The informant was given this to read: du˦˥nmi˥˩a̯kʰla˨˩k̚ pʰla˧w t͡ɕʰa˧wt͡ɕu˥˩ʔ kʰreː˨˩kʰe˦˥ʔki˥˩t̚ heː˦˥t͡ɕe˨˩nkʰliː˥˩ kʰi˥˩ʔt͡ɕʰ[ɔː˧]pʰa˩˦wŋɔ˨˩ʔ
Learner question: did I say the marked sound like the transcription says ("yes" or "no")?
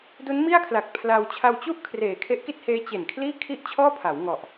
no